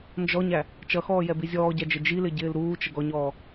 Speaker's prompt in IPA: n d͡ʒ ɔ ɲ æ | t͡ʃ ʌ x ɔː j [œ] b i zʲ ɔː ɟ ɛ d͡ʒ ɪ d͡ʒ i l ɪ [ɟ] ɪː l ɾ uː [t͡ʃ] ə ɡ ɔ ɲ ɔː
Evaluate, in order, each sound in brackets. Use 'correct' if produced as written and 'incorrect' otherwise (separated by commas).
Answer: incorrect, correct, correct